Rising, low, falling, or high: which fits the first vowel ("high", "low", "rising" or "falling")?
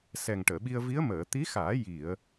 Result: low